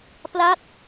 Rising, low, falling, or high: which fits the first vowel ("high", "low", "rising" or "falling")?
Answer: falling